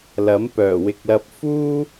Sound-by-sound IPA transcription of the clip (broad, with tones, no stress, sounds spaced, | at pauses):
l ɐ˨˥ m p œː˨˩ w ɪ˧ k̚ l ɐ˧ p̚ f uː˥